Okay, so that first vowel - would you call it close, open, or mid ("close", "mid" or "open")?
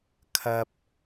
open